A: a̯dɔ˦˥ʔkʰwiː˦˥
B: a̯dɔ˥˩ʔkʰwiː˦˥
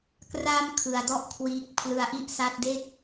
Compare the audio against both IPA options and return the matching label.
B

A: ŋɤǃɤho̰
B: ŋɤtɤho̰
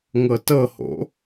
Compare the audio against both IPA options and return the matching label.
B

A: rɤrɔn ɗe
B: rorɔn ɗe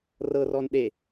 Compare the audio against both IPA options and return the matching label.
A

